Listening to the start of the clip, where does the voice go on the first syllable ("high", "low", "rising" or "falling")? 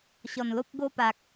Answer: low